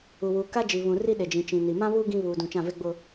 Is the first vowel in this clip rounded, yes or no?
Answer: yes